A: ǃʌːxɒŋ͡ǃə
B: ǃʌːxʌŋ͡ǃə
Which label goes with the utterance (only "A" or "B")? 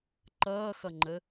B